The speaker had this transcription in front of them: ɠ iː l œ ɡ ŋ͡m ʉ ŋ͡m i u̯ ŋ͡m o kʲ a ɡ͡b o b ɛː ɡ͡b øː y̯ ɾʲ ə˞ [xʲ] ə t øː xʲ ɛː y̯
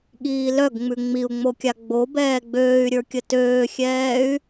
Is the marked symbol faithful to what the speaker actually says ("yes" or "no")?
no